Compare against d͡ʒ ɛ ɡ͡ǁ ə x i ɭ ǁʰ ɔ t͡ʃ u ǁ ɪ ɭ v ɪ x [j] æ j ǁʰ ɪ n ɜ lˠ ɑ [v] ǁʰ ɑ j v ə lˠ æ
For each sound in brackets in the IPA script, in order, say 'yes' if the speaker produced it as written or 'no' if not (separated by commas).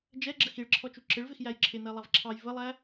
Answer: yes, yes